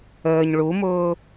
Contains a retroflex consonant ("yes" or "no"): yes